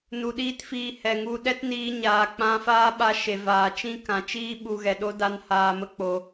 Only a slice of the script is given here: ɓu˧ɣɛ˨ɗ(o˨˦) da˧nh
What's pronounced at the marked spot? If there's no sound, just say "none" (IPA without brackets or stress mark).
o˦